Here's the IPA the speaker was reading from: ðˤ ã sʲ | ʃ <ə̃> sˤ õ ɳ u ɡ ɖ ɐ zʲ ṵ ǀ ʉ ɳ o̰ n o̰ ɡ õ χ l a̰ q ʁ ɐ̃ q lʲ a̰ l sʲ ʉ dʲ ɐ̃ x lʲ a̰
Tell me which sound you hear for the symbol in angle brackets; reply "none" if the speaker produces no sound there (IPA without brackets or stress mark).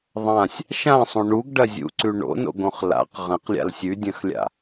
ã